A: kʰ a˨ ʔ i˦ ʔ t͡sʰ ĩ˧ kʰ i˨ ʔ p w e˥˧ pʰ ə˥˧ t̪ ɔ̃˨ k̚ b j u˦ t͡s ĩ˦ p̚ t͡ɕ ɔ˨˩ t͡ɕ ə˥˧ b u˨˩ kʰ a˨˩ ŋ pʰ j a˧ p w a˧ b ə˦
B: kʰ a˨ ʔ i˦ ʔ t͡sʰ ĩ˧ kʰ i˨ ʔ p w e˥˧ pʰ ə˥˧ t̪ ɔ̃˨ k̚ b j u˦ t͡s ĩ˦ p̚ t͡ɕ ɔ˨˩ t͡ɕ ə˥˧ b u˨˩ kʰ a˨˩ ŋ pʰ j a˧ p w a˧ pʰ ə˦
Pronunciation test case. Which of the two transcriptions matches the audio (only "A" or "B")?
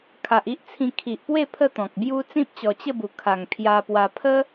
B